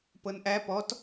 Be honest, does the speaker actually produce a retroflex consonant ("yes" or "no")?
no